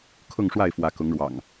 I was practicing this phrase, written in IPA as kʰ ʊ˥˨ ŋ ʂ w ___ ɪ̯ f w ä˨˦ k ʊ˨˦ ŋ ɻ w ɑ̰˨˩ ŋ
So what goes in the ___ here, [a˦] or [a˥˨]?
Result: a˥˨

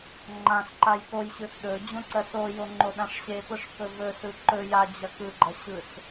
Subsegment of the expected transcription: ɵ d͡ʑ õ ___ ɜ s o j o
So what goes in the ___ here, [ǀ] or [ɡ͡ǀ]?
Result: ǀ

